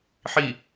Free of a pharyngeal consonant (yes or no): no